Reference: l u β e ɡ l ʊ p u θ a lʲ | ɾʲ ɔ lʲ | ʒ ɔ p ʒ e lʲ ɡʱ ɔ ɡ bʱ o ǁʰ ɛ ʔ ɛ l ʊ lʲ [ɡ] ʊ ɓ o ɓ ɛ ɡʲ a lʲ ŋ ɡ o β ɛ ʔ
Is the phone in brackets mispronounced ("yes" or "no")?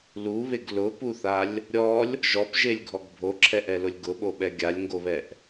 no